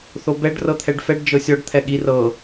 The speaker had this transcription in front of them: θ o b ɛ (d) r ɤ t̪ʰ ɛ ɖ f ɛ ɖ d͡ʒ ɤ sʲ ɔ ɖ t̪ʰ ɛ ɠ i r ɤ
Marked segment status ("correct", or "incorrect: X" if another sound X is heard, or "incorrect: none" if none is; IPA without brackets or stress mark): incorrect: ɖ